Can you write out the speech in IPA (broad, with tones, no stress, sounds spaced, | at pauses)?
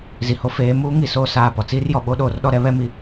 z i˨ h o˦ f eː˨˦ m uː˦ ŋ i˦ s oː˦ s aː˦˨ p ɔ˨ t͡s iː˦ r j ɔ˨ ɓ o˦ ɗ oː˨ r ɗ ɔ˦ ɾ ɛ˦ β ɛ˦ m i˦